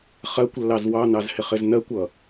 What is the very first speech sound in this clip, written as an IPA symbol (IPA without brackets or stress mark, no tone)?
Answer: χ